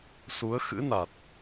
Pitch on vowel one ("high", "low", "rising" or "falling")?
rising